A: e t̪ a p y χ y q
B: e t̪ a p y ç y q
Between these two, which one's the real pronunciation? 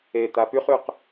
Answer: A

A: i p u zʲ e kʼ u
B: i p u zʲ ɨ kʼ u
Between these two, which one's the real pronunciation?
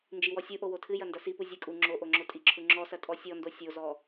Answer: B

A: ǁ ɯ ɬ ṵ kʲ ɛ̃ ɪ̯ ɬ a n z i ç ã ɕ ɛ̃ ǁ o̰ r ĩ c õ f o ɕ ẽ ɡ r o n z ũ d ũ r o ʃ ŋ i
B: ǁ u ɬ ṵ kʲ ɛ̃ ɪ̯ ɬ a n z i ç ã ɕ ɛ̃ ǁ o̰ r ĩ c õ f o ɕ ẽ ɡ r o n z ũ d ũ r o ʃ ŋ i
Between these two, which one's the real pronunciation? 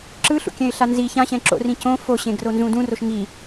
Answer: A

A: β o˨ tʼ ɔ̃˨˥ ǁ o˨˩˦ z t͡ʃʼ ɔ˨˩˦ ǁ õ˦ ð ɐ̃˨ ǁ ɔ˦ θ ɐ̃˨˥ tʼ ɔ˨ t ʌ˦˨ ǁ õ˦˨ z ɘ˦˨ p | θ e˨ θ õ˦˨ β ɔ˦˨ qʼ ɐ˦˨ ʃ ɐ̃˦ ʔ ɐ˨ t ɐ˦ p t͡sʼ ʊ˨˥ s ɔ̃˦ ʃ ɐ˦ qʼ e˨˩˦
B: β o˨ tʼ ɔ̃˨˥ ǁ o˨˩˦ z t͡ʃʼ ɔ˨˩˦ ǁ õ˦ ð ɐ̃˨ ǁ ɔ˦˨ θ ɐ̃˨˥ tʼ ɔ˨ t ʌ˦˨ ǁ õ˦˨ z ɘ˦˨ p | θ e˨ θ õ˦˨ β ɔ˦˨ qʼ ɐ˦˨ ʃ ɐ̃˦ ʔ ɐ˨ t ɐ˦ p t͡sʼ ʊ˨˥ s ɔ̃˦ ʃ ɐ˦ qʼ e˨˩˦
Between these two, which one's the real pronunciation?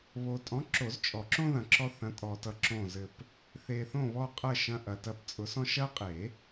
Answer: A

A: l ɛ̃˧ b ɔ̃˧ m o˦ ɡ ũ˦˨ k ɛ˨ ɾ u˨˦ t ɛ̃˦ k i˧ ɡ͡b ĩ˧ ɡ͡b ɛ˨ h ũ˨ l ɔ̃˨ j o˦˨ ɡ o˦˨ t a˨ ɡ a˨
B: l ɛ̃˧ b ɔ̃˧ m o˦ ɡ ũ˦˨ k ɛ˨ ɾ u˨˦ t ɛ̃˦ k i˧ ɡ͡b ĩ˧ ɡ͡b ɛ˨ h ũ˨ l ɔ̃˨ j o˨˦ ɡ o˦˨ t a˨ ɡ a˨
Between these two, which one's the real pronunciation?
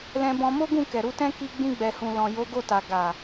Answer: B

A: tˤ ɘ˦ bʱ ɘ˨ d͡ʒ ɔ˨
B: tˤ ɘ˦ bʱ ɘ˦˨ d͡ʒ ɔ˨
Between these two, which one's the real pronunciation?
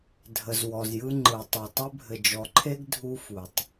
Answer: A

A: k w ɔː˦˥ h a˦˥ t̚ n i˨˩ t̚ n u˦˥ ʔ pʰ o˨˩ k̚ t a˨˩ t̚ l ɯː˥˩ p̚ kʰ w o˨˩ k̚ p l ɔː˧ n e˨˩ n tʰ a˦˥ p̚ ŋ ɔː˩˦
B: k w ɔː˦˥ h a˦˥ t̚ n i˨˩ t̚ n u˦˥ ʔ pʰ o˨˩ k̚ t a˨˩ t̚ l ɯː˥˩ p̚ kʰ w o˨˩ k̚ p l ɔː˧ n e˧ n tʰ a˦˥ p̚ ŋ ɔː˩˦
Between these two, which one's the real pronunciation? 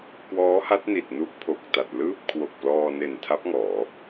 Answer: A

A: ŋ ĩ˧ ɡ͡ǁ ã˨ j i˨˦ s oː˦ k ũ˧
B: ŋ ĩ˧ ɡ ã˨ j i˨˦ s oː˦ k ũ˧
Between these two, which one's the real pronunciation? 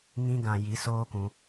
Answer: B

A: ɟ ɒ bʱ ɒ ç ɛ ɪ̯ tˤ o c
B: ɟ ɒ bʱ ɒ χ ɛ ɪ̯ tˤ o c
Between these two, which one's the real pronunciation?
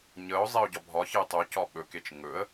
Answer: A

